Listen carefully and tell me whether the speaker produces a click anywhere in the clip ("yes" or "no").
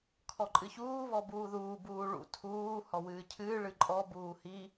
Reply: yes